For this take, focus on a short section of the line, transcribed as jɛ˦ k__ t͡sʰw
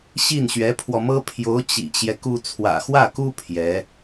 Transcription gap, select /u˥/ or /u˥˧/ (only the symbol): u˥